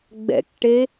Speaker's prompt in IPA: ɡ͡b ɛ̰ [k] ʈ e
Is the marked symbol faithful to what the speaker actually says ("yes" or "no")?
yes